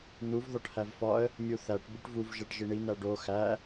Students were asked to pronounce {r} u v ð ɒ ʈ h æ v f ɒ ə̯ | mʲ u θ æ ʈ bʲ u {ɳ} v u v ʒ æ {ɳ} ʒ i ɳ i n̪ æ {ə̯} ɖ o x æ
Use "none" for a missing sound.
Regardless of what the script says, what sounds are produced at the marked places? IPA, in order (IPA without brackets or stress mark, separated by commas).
n̪, ʈ, ʈ, none